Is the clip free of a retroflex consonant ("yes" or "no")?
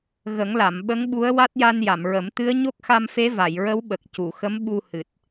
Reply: yes